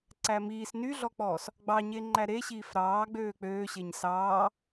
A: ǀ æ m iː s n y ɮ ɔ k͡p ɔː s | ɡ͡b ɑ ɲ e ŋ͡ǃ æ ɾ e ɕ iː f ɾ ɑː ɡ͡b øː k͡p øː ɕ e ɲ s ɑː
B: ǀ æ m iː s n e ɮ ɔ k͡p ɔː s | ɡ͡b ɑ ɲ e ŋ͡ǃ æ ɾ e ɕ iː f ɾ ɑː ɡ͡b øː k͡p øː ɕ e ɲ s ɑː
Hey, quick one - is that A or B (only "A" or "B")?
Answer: A